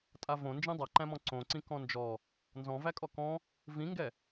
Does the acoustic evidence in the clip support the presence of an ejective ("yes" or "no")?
yes